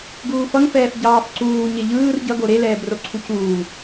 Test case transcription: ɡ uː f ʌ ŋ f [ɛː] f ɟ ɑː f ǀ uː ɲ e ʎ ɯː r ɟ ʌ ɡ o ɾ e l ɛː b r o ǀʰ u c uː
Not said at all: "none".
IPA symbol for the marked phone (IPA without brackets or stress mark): ɛː